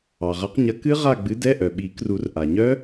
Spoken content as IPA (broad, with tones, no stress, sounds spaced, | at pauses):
ɑ˩ ʁ ɐ˨˥ q ɲ ɐ˨˥ k ɨ˦˥ ʁ a˦˨ ɡ͡b ɨ˨˥ d ɛ˧˥˧ ʔ œ˩ ɓ i˨˩˦ k r u˨˩˦ r ʔ a˩ ɲ œ˦˥